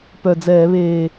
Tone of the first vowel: low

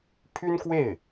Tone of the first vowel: high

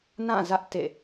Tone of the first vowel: falling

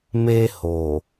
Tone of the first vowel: high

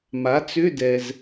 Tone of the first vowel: rising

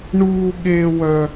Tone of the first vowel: high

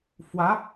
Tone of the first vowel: rising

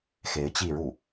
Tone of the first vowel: rising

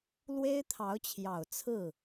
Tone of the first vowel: high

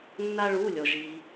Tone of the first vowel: high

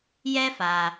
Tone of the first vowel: high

